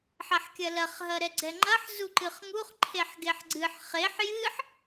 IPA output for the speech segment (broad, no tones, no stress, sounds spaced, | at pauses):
ħ ɐ ħ kʲ ɐ l ɐ χ ɦ ɐ ɾ ɛ ɡ͡ǀ ɛ ŋ͡ǃ ɐ ħ z u ǃ ɨ χ ŋ u χ ǃʰ e ħ ɡ e ħ ɡ͡ǀ ɨ ħ χ e ħ j ɨ ħ